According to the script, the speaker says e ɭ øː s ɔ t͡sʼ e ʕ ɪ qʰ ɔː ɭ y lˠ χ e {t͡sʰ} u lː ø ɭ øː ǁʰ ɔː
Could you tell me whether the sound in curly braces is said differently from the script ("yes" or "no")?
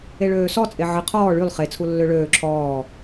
no